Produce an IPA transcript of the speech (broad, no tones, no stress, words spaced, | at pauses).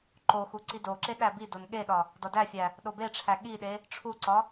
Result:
ǃoxu ǀidoǁe ɗæbidon ɠeɗɒ | dɒdæfʲæ | ɗobeʈ͡ʂʰæ ɠiɗe | ʈ͡ʂʰuǀɒ